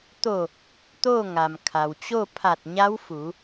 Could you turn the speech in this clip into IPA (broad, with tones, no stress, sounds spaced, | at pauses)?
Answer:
t̪ o˧˩ | t̪ oː˥˨ ŋ a˩ m kʰ a˩ w t͡ɕ o˥˨ pʰ a˧˩ t̚ ɲ a˧˥ w f u˩˧